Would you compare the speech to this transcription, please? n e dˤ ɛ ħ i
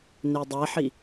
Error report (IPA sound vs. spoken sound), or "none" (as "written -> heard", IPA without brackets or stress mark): none